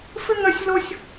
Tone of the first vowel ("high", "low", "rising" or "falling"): high